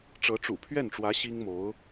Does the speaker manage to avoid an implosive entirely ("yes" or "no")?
yes